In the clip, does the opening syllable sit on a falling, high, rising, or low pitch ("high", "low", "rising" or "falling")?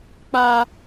low